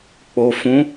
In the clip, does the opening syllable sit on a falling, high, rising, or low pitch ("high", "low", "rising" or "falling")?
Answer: low